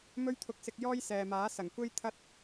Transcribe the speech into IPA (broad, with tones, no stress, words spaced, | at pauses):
mɵ˥ɥt̪ʰʊ˧k̚sɪ˧k̚jɔː˥j sɛː˨maː˨˥ sɐ˨˩ŋkʷe˥jt̪ʰɐ˥t̚